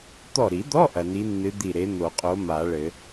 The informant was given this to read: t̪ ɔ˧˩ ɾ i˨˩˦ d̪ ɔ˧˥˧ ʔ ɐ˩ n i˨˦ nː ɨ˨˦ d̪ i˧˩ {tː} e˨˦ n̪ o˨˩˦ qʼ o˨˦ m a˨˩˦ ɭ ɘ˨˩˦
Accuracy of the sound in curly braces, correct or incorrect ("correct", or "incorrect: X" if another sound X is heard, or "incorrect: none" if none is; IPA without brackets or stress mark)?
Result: incorrect: ɾ